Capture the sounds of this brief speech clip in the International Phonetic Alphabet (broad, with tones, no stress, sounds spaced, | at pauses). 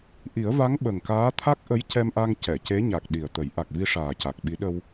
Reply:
ʔ i˨˩˦ ə̯ v a˧˥ ŋ ɓ ə˨˩ ŋ k aː˧˥ t̪ʰ a˦˥ k̚ ʔ ə˧˥ j c ɛ˧ m ʔ a˧ ŋ c ɛ˨˩˨ c e˧˥ ɲ a˨˩ k̚ ɗ i˨˩ ə̯ t̪ ə˨˩˦ j ʔ a˨˩ k̚ v i˧ ʂ aː˨˩ c a˨˩ k̚ ɓ i˧˥ ɗ ə˧ w